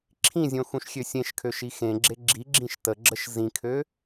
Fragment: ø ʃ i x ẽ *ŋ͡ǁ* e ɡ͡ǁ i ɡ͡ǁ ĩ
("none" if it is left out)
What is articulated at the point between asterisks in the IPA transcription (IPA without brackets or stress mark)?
ɡ͡ǁ